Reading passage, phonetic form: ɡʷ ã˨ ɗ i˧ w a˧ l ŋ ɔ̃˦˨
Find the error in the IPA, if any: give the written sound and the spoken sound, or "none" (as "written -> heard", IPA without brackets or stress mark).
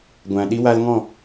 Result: none